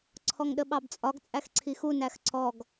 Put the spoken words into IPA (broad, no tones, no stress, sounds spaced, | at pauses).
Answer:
ǀʰ ɔ ŋ ɗ ə ɓ ɑ b t͡sʼ ɒ ɡ t͡sʼ æ x ǀʰ i x u n æ x ǀ ɔ ɡ